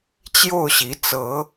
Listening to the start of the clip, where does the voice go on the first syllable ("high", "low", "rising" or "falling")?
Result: falling